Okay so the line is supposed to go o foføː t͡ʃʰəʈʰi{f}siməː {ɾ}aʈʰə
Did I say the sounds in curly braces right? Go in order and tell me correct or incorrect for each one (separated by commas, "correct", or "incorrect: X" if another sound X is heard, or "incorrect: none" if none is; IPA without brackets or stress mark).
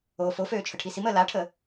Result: incorrect: none, incorrect: l